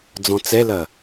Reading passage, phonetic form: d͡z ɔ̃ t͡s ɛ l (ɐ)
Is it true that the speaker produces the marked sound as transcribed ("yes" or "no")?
yes